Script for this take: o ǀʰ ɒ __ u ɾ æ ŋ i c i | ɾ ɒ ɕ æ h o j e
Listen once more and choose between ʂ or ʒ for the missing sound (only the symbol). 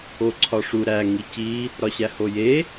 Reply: ʂ